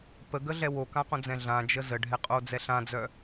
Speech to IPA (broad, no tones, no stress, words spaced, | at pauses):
pəɡəɮɛ wokãqõd͡zɛ̃ ɮãd͡ʒə zəɖʱɛqʼod͡zɛ ɬãd͡zœ